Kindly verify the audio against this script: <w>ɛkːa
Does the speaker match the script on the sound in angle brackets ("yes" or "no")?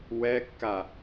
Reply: yes